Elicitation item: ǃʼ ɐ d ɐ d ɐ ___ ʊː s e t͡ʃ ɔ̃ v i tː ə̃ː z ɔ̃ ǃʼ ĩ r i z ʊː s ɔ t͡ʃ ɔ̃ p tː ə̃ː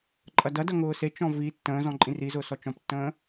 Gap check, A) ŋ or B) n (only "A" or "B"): A